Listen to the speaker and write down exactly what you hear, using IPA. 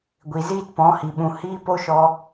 ɡʷ i˨ z iː˦ t p ɔ̃˨˦ h i˨ ɓ ũ˨ h iː˦ p o˦ ʃ ɔ˧

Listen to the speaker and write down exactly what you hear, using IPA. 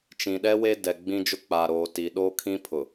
t͡ʃ ĩ˨ ɗ ɛ˦ w e˦ d ɛ˨ ɡ͡b ĩ˦ d͡ʒ ʊ˦ k͡p a˨ ɾ oː˨ t i˨ ɗ oː˦ kʰ ĩ˦ pʰ ʊ˨

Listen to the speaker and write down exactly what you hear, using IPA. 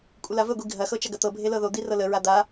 kʷʼ ə l a v ə ɡʷ i ɡʱ ɐ x ɤ t͡ʃ ɐ ɡ ɐ t̪ ɤ bʱ e l ɤ ð o d̪ i r ɤ l ə ɹ a d̪ a

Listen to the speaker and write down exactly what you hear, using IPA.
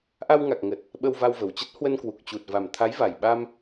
ʔ a˧ w ŋ a˨˩ k̚ ŋ ə˨˩ t̚ | ɓ ə˧ w v a˧ w v ə˨˩ w t͡ɕ ə˦˥ t̚ h w ə˧ n k w u˨˩ k̚ t͡ɕ u˨˩ t̚ v a˨˩ m t̪ʰ a˨˦ j v a˨˩ j ɓ a˧ m

